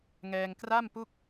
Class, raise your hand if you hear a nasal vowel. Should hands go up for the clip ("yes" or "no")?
no